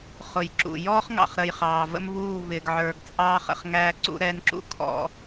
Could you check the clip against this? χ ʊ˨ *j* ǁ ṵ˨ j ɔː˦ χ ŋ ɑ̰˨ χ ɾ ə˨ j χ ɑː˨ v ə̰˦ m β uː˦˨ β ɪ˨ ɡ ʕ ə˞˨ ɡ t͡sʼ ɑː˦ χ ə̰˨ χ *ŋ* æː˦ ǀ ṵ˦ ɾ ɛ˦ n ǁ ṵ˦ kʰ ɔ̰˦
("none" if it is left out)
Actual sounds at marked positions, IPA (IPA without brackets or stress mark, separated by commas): j, ŋ